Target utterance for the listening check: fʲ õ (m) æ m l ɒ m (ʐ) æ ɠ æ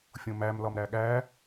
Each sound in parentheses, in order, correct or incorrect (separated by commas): correct, incorrect